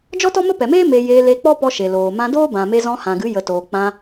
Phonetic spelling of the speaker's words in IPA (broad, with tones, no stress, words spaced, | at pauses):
d͡ʒɔ˦tɔ˦mə˦ pɛ˨meː˦ me˧ jeː˧le˧k͡pɔ˦pɔ˧ ʃe˨loː˨mã˧doː˦ bã˨me˧zɔ̃˧ hã˨ɡɨ˨˦ jə˨toː˨ k͡pã˧